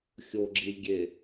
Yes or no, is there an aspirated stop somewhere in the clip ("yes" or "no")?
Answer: no